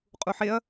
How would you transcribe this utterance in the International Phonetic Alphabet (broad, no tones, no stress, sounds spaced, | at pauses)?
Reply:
qʼ u ħ e ɐ̯